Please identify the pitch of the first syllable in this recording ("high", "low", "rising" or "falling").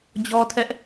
high